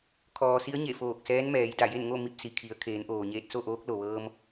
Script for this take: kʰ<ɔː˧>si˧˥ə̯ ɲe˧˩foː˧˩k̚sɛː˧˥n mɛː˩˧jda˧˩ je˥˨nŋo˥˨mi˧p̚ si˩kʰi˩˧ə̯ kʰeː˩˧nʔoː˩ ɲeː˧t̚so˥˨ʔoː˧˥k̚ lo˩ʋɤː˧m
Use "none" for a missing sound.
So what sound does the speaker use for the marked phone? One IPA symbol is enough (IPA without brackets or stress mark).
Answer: ɔː˩